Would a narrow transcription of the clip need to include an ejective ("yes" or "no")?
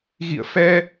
no